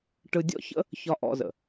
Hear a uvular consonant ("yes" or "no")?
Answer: no